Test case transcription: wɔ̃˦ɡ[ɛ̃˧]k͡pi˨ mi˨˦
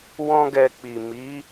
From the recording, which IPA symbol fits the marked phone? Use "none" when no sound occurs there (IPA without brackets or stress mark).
ɛ˧